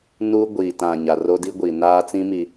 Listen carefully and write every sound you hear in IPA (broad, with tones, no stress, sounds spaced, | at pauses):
n uː˦ ɡʷ iː˨ t ã˨ ɲ a˨ r o˦ d i˦ ɡʷ i˨ n aː˦ t͡s ĩ˦ m i˨